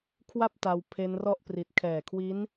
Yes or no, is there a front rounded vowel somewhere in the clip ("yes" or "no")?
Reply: no